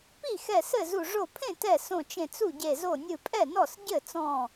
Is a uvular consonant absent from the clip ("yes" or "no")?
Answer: yes